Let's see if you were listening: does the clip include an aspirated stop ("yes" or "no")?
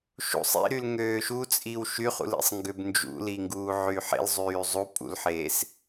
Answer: no